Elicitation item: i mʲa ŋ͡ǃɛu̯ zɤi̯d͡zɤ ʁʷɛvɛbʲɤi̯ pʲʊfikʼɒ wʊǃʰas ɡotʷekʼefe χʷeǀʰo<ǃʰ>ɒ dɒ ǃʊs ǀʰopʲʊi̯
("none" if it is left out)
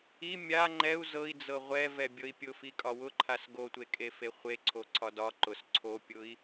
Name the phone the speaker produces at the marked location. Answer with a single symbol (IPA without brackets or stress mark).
ǀʰ